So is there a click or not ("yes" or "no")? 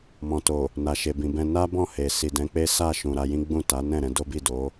no